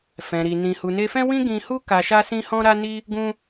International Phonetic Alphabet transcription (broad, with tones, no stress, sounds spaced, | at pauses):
f ɛ̃˨ ɾ i˨ n ĩ˨ h u˨ n e˧ f ɛ̃˦ w ĩ˦ ɡ ĩ˧ h u˦ k a˧ ʃ a˦ s ĩ˦ h ɔ̃˦ ɾ a˦ n i˦ | ɡ ũ˦